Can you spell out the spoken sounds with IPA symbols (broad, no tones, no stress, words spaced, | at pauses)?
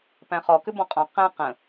pæ̃χɔ kʏbɔ̃qʼɔ̃ qæ̃ qə̃